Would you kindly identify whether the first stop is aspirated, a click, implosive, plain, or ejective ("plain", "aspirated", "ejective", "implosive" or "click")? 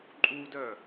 click